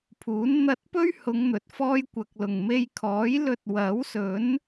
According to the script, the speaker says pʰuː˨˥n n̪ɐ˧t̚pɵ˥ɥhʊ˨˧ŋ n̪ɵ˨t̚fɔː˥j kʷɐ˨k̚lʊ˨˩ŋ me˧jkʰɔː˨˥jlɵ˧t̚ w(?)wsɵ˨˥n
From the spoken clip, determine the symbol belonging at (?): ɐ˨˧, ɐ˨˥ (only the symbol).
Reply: ɐ˨˥